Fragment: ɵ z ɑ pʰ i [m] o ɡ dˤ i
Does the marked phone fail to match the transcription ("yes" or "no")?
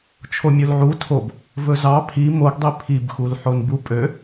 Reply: no